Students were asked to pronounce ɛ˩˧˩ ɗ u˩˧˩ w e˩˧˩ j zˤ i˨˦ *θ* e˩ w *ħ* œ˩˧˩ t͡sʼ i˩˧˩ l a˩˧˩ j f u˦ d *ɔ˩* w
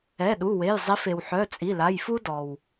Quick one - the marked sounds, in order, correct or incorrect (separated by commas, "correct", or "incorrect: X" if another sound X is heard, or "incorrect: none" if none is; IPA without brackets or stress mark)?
incorrect: f, correct, correct